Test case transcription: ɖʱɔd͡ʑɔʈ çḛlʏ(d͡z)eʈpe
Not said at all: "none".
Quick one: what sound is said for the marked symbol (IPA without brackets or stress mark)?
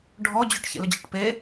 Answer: d͡ʑ